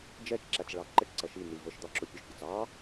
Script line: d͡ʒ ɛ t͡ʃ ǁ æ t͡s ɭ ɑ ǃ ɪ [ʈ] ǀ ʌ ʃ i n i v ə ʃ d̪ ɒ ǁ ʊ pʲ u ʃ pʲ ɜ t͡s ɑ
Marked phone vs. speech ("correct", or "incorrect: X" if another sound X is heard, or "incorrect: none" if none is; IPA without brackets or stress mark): correct